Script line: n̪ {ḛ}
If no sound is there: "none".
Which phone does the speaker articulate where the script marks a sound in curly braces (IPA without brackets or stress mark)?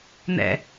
ɛ̰